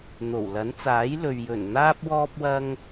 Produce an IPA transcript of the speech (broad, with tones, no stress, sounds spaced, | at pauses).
n̪ o˨˩ w l ɐ˨˥ n t͡s aː˨˥ j l ɵ˨ ɥ j ɵ˨˩ n n̪ aː˥ p̚ w ɔː˥ p̚ w ɐ˥ ŋ